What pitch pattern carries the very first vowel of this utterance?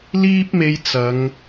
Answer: high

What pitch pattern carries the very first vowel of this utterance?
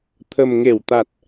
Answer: low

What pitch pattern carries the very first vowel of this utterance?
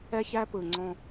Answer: high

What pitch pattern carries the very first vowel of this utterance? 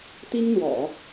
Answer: high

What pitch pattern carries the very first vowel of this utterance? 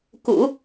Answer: low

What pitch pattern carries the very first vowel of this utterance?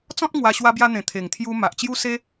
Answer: high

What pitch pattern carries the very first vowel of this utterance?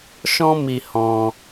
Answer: high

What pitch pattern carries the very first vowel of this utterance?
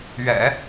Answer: low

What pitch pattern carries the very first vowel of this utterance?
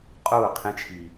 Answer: falling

